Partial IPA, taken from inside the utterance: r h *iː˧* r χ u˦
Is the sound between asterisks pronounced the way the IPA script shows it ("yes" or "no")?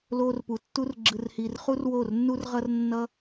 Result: yes